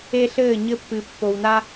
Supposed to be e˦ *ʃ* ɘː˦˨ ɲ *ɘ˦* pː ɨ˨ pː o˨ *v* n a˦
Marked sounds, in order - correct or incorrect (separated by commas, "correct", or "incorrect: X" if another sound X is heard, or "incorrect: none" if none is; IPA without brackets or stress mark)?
incorrect: ɬ, correct, incorrect: w